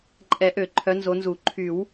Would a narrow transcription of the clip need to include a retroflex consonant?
no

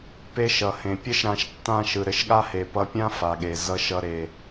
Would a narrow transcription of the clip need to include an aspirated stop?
no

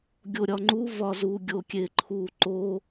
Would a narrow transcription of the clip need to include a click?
yes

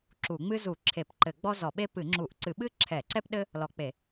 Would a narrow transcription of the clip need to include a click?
yes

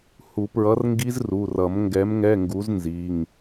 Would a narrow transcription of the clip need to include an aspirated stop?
no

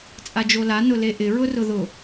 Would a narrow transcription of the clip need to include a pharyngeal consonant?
no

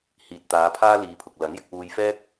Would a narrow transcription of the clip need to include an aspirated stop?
yes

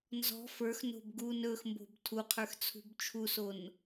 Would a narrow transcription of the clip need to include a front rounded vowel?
no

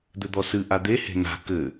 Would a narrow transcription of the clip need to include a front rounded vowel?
no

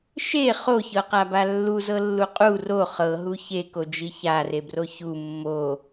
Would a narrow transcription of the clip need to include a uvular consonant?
yes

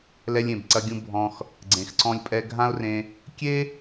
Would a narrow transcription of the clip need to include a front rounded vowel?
no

